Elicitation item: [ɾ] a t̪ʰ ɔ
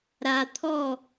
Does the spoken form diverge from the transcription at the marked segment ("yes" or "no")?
no